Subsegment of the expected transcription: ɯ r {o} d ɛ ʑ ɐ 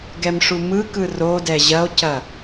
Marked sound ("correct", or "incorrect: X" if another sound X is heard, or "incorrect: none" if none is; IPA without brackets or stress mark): correct